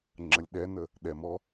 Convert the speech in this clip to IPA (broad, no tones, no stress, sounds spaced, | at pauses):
ŋ͡ǁ ə lʲ ɗ ɛ n ə | ɗ ɛ m ɔ